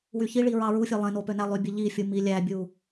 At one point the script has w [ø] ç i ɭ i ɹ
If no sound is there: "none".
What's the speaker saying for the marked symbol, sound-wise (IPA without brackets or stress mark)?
y